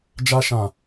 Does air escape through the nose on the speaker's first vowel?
no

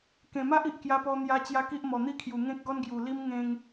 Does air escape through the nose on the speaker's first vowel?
yes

